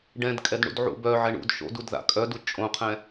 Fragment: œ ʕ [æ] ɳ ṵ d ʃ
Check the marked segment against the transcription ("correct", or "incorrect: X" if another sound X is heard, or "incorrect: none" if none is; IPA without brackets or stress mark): incorrect: ɛ